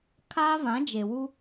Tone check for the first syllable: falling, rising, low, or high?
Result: high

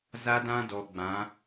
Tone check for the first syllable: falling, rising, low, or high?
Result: high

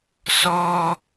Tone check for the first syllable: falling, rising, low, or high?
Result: high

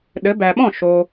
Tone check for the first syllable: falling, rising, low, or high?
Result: rising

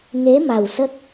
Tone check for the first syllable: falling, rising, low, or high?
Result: rising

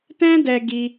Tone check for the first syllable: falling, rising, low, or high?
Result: high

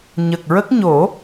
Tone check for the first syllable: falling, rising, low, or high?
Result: low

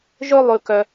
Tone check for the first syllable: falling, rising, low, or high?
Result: high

